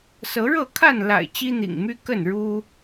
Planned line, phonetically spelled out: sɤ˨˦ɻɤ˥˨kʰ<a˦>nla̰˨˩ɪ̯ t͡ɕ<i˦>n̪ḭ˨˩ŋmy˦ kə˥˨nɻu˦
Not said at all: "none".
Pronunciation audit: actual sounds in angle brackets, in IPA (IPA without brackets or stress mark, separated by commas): a˥˨, i˦